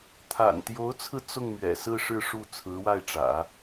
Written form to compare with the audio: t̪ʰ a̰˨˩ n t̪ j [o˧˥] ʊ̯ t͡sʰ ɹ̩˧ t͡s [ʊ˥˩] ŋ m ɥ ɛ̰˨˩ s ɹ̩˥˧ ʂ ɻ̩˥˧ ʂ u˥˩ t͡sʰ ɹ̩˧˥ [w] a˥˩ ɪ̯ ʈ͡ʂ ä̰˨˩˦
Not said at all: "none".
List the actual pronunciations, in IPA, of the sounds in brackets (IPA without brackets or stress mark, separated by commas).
o˧˥, ʊ˥˩, w